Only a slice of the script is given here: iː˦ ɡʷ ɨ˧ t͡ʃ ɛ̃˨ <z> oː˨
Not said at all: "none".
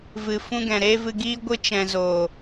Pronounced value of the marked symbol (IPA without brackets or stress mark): z